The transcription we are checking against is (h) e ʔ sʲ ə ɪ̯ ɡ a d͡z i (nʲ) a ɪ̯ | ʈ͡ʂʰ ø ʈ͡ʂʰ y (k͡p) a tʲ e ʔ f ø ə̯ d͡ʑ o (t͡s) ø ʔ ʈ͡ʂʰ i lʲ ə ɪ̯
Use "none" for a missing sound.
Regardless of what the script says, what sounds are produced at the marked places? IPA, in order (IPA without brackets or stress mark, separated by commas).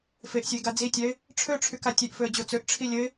f, tʲ, k, t͡s